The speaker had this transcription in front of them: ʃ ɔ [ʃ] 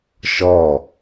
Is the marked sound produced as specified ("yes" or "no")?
no